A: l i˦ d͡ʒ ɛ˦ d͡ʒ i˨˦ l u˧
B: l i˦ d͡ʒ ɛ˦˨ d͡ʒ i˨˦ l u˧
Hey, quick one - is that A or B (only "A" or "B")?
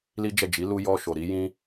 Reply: B